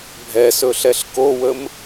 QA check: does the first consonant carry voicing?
yes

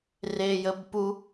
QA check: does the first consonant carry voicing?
yes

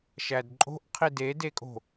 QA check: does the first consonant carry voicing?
no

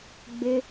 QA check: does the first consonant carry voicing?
yes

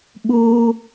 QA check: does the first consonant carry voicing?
yes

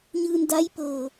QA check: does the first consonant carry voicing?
yes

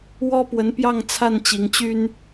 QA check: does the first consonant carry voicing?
yes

